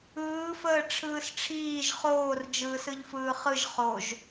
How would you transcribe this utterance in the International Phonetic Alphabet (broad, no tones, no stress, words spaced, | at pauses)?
ɯːfəː ʈ͡ʂʰɯːsʈ͡ʂʰiːʒ χoːr d͡ʒɯːsɯʎfɯːχɯʒ χoʒ